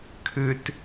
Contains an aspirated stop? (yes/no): yes